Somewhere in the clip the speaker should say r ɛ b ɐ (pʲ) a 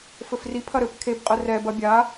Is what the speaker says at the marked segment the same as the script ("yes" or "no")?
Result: no